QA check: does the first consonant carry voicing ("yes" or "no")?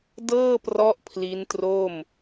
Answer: yes